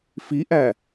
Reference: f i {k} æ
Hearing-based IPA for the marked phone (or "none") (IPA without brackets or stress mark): ʔ